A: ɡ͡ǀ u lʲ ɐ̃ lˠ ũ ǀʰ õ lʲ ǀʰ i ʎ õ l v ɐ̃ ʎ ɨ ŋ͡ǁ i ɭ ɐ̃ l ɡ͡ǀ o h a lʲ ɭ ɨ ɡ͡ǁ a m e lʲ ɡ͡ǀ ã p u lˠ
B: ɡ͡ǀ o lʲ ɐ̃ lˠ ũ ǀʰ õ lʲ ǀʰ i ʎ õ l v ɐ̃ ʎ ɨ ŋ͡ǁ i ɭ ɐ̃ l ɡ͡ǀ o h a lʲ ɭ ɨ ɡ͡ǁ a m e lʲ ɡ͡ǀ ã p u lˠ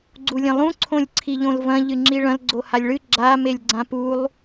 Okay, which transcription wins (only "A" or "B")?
A